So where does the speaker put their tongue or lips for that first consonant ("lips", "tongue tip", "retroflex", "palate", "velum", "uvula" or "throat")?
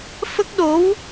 lips